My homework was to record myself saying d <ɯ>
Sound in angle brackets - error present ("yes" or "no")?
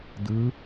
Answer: no